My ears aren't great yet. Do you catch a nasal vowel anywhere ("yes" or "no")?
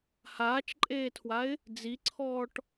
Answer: no